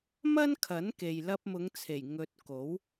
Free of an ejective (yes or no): yes